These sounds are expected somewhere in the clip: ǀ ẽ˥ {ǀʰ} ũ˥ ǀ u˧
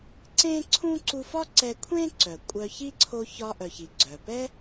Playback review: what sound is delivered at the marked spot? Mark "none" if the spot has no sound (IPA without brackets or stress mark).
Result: ǀʰ